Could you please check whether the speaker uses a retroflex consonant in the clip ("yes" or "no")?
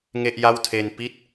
no